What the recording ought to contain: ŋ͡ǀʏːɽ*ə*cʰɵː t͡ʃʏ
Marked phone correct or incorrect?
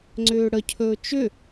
correct